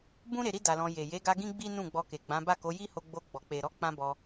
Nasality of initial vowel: nasal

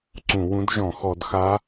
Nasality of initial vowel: nasal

